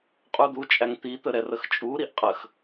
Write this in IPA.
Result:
qʼ u d̪ u t͡ʃʼ æ ŋ t̪ i t̪ ə ɾ ɛ r ə x t͡ʃʼ u ɾ i ʔ qʼ ə x

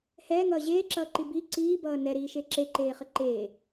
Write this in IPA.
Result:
h ɛː ŋ ʌː ʑ eː ǁ ʌː ǃ i b i ǀ iː b ʌː n ɛ ɾ iː ʃ e ǁ e ǃ eː χ ə ǃ eː

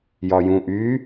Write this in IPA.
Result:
j ɒ j ũ ʔ y

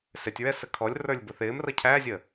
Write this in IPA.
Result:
s ɪ tʲ ɹ ɛ s ə kʰ ɔ lʲ r ə˞ lʲ b ʊ θ ɪː m r ʌ cʰ æ zʲ ə

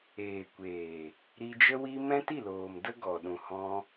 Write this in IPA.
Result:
eː˨ kʷ eː˨ | ɾ i˧ d͡ʒ ə˦ w i˦ m ɛ̃˦ t i˦˨ l oː˨ m d ə˦ ɡ ɔ˨ ɗ ũ˨ h ɔ̃˧

